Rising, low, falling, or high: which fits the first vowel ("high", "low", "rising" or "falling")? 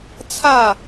falling